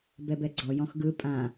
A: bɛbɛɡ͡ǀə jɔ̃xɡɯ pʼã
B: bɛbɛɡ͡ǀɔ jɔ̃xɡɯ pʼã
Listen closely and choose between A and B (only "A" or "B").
B